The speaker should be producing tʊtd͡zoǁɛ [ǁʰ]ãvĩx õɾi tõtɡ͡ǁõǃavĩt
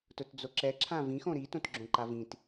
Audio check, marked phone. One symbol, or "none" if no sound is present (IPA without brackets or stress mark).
ǁʰ